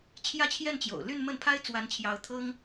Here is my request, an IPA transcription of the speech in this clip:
t͡ɕʰjä˥˧t͡ɕʰjɛ˥˩nt͡ɕjo̰˨˩ʊ̯ ly˥˧nmə˥˩npʰa˥ɪ̯ t͡swa˧˥nt͡ɕʰjɑ˧˥ʊ̯ t̪ʰɤ˥ŋ

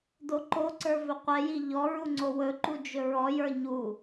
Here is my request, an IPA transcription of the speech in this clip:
doǃoǀə˞ vɵqʷɛji ʎɔ ɹuŋ͡ǀowɵǃu d͡ʒɵɹɔjə˞ ɲu

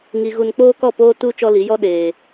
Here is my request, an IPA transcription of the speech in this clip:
ŋi˨ ɣu˨nk͡poː˦kɔ˦˨poː˦ tu˦ t͡ʃɔ˦li˨˦ jɔ˦ɗeː˨

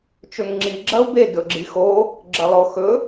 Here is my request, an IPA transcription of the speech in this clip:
t͡ʃɵŋŋ͡ǁi ɡ͡ǁɐu̯be dɵɡ͡ǁixo | ɡ͡ǁɐlˠoxɵ

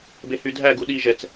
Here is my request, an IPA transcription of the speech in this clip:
behydʱæɡu ɗi ʒɛt͡s

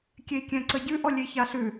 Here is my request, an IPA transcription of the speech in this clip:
kʲei̯kʲɛ̃ǀəɟʉ ʔɔlʲeçaɬʉ

